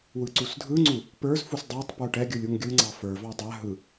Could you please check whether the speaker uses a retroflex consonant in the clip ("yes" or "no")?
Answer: yes